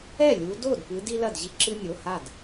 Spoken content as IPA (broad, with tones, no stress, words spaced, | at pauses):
ɛ˥˩lʲu˨˦ do˥˩dpɨ˨˦d i˦lɐ˥˩dʑi˦ ǁɨ˦nʲo˩˧˩ha˥˩d